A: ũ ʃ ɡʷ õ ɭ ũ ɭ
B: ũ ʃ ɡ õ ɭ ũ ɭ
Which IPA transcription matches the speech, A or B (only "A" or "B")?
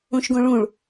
B